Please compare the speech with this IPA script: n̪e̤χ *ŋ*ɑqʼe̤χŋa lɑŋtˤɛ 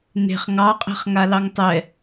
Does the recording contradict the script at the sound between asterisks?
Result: no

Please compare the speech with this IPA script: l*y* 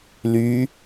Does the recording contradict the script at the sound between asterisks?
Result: no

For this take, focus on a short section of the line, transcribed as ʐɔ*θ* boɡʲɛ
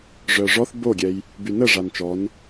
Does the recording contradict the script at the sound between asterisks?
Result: no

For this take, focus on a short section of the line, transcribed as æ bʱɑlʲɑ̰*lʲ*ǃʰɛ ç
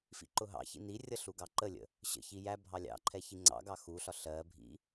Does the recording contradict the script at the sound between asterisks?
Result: yes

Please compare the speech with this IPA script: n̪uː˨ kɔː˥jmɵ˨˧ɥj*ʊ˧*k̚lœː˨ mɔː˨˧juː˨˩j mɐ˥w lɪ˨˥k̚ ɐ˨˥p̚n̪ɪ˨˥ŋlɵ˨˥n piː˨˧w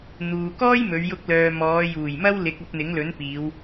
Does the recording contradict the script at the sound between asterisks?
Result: no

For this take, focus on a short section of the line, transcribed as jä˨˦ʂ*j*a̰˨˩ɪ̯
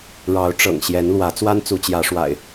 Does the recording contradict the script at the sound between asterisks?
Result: yes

